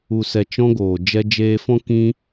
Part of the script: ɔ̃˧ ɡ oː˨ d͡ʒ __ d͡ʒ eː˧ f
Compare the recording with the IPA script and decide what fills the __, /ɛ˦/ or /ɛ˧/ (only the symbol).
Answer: ɛ˧